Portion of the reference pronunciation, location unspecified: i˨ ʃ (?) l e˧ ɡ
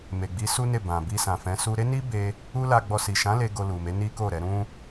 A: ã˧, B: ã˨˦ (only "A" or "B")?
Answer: B